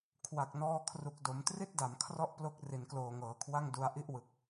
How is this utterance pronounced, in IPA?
kʰ w a˨˩ k̚ n ɔː˧ kʰ r u˨˩ k̚ d o˩˦ m t r i˥˩ t̚ d a˩˦ m kʰ r ɔ˥˩ ʔ p l o˦˥ k̚ r i˩˦ n k l oː˨˩ ŋ ɤː˩˦ kʰ w a˥˩ ŋ d u˧ a̯ ʔ i˥˩ ʔ w ɯ˨˩ k̚

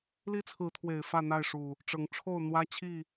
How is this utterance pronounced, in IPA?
l i˦ t͡sʰ ɹ̩˨˦ t̪ʰ w e˨˩ ɪ̯ f ä˥˨ n̪ a˥˨ ɪ̯ ʂ u˨˩ | ʈ͡ʂ ɤ˨˦ ŋ ʈ͡ʂʰ o˥˨ ʊ̯ n̪ w ä˦ t͡ɕʰ i˥˨

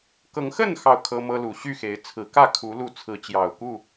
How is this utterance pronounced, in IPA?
k ɤ˨˦ ŋ x ə˥˨ n x ɑ˥˨ ʊ̯ kʰ ɤ˦ m ɤ˦ l u˨˩ ɕ y˥˨ x e˨˦ ɪ̯ t͡sʰ ɹ̩˨˦ k ä˥˨ kʰ u˨˦ l u˥˨ t͡sʰ ɹ̩˨˦ t͡ɕ j ɑ˨˩ ʊ̯ k u˥˨

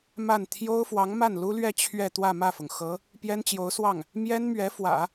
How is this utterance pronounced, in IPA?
m a˥˩ n t̪ʰ j o˥ ʊ̯ f w ɑ˧˥ ŋ m a˥˩ n l u˥ l ɥ ɛ˥˧ t͡ɕʰ ɥ ɛ˥˧ t̪ w ä˥˧ m ä˥˩ f ʊ˩ ŋ x ɤ˧˥ | p j ɛ˥ n t͡ɕ j o˧˥ ʊ̯ s w ɑ˥˩ ŋ | m j ɛ˥ n m ɥ ɛ˧˥ f w ä̰˨˩˦

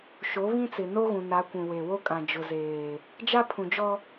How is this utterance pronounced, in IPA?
ʃ o˨˦ β ĩ˦ t͡s ɪ˨ n o˦ ɣ ũ˨ n a˨˦ kʷ ũ˨ w e˨ w o˦ kʼ ã˨ d͡ʒ ʊ˨ z eː˨ | d͡ʒ a˦ pʰ ũ˨ d͡ʒ ɔ˦

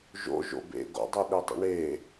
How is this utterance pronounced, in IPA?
ʒ o̰ ʒ o̰ b ḛ ɡ o̰ dˤ i ɗ e dˤ ḭ ɳ e

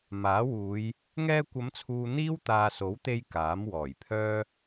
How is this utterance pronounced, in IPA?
m aː˨˥ w uː˨˧ j | ŋ ɛː˧ kʷ ɐ˨˧ m t͡sʰ uː˨ n̪ iː˥ w t̪ aː˨ s o˨˥ w t̪ e˧ j k aː˨˥ m w ɔː˨˩ j pʰ œː˥

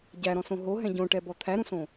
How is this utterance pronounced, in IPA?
ɟ æ ɾ ɔ̃ s õ ɦ o ɦ ɛ̃ ɟ õ ʈ ɛ b ɔ t̪ʰ æ ɾ ũ s õ

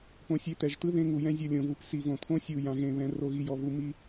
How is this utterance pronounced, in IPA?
p õ˨ sʲ e˨ t̪ ɛ˨ ʒ t̪ ɯ˦ ð ẽ˦ ŋ u˨ j ɛ̃˦ zʲ ɤ˦˨ lʲ õ˨ v u˨ p s i˨ v õ˨ t̪ʰ õ˦ sʲ u˨ j ã˨ ɣ ẽ˨ β ɛ̃˨ r o˨ ɣ i˨ j ɔ˨ v u˨ m i˦

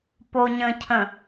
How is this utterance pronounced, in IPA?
p o ɲ ə̃ cʰ ə̃

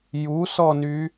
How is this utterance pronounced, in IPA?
j u s ɔ n y

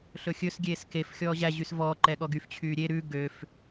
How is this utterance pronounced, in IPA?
ɬ ɵ xʲ ɵ s ɡʲ eː s k e f xʲ ɔː ʑ æ ʑ y s v ɔː ǃ ɛ ɠ ɔ ɡ y f t͡ɕʰ yː ɾʲ e ɾ ʉ ɡ ø f

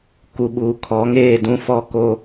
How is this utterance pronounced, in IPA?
k u˨ ɓ uː˨ kʰ ɔ˨˦ ŋ eː˦˨ d ũ˦ f ɔ˦ k o˦

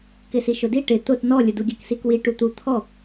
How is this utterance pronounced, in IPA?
k ɪ s i ʃ ʊ d i ʈ ɪ t̪ ʊ t n ɔ lʲ ʊ d u ɡʲ ə k s i k w i ʈ u t̪ u t̪ʰ ɔ

